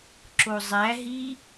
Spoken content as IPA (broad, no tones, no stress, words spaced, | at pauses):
ǁozˤæɦi